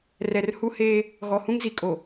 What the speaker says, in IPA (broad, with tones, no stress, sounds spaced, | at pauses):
r ɛ˨ r h u˦ h eː˦ | ɣ ɔ˨ h ũ˦ ŋ z i˨ kʼ o˨